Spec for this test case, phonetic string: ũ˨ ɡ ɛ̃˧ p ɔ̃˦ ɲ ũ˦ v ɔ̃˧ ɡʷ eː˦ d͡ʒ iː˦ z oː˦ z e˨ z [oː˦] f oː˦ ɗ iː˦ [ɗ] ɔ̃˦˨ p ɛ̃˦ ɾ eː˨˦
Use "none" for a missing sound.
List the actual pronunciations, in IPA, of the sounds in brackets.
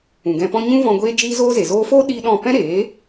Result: oː˦, ɗ

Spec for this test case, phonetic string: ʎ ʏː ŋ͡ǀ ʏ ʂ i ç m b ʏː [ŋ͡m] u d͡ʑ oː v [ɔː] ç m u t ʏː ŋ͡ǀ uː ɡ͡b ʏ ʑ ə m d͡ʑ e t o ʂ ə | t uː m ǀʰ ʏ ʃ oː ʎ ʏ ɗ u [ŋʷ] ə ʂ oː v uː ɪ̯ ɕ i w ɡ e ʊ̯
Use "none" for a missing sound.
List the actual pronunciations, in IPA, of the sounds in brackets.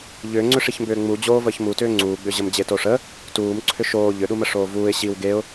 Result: ŋ͡m, əː, m

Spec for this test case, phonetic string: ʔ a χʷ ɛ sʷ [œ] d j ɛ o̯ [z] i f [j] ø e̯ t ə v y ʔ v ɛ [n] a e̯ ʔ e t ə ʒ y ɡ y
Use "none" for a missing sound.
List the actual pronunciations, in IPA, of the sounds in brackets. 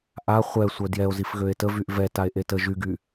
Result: œ, z, ɣ, t

